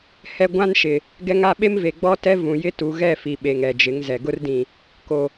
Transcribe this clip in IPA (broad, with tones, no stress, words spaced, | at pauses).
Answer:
hɛ˦ ɡʷã˦nʃɪ˨ | ɡɛ˦ŋa˦ ɓe˦mve˨ ɡ͡bɔ˦tɛ˦ vũ˨ jɪ˦tu˨ɣɛ˦˨ fi˨ɓe˨ŋ ɛ˨d͡ʒɪ˨˦ŋzɛ˨ ɡʊ˦rdĩ˨ | ko˨